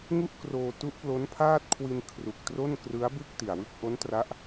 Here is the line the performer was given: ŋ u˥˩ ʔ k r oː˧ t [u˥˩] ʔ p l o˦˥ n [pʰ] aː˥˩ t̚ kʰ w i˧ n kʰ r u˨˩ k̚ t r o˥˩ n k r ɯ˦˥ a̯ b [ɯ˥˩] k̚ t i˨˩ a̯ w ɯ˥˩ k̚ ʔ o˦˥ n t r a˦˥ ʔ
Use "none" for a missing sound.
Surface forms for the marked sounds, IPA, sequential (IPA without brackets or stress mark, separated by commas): u˦˥, pʰ, ɯ˥˩